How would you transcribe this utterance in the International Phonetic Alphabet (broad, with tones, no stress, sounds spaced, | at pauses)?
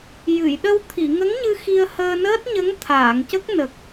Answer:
j ɨ˨˩˨ j ɗ ə˧ w t̪ʰ i˨˩˨ ŋ ə˧˥ ŋ ɲ ɨ˧ x i˧ ə̯ h əː˧ n əː˦˥ t̚ ɲ ə˧˥ ŋ t̪ʰ aː˨˩˨ ŋ c ə˦˥ k̚ n ə˨˩ k̚